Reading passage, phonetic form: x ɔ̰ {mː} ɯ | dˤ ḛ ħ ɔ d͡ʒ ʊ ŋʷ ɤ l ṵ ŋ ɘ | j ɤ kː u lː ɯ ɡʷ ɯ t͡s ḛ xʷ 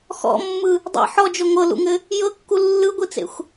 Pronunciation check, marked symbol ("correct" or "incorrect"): correct